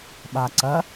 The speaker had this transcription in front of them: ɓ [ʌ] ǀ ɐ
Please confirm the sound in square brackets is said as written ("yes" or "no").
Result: no